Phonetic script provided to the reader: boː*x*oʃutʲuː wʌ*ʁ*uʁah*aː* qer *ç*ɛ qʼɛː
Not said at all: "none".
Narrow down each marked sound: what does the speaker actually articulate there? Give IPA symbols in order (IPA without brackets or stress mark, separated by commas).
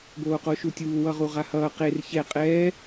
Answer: q, ʁ, ʌː, ç